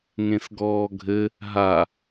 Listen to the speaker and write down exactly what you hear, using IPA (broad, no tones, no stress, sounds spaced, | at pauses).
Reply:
ŋ ẽ s ɡ ɔː ɡʱ ɘ | ɦ a